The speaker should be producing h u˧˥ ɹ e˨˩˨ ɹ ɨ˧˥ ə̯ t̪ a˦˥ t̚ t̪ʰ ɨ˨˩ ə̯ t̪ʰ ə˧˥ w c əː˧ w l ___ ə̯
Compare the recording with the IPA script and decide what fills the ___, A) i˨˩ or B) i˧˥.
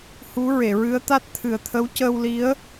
B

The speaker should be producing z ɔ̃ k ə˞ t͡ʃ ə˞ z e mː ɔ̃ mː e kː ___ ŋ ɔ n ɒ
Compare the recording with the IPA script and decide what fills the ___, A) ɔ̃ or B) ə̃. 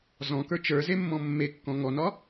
A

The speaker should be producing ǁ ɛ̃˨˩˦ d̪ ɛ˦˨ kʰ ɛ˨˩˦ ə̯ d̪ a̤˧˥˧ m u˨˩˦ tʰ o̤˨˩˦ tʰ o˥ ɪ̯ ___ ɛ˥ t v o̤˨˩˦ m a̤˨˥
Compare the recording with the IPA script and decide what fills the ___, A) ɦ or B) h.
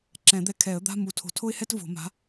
B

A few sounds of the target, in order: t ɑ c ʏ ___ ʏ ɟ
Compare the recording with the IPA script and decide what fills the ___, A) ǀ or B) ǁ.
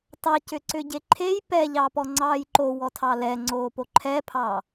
A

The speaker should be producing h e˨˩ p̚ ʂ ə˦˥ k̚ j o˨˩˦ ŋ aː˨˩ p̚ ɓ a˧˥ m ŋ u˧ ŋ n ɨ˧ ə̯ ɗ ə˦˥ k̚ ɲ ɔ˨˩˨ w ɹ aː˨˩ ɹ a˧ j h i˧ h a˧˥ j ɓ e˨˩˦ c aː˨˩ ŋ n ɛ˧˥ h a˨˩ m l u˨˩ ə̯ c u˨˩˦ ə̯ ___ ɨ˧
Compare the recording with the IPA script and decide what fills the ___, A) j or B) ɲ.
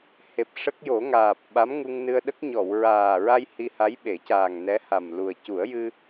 A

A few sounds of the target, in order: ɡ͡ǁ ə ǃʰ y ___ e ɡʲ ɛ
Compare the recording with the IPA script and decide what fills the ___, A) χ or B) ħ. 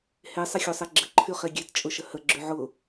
A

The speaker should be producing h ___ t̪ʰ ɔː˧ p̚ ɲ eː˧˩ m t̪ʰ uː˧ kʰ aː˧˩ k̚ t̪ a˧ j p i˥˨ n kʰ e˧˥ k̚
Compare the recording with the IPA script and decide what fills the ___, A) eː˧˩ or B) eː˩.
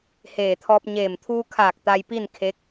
A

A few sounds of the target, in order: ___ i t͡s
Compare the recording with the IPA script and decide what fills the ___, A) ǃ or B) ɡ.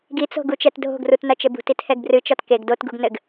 B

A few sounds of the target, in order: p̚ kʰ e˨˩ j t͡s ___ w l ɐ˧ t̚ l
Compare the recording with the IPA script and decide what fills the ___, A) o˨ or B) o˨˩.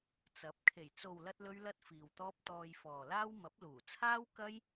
A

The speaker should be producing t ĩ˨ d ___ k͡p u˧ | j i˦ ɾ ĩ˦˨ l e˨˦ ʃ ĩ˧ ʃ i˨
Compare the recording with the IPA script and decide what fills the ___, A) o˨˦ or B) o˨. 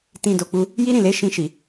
B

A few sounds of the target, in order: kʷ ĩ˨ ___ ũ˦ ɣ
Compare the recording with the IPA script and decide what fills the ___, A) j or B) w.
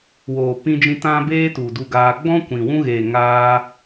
B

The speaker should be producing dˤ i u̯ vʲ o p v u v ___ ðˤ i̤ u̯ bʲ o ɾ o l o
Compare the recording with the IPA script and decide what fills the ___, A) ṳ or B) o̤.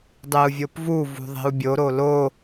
A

